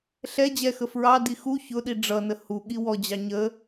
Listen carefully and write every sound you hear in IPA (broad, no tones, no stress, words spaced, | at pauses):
ɬɛ d͡ʑɛxə fɹɑdi xu çʊɗi ɖ͡ʐʌnə huɠi wɔd͡ʑɑ ɲə